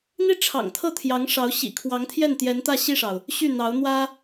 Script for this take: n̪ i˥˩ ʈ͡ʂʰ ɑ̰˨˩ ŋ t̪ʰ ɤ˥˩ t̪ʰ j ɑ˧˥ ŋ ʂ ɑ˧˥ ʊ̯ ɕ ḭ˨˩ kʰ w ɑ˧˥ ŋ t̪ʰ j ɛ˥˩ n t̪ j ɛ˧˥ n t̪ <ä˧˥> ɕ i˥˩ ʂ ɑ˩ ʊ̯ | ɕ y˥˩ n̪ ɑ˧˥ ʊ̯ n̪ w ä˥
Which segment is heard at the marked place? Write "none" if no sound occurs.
ä˥˧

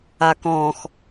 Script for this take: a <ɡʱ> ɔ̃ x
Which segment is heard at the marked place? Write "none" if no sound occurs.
k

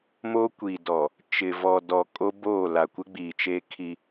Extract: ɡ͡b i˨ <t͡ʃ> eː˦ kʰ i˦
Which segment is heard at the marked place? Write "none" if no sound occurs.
t͡ʃ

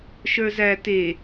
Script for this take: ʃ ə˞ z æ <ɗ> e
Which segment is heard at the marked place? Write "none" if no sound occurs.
t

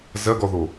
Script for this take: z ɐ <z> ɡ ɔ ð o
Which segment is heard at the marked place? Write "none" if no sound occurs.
none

